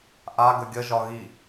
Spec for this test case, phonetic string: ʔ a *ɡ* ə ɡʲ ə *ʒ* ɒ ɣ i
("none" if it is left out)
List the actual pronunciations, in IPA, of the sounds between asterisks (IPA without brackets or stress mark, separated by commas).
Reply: ɡ, ʒ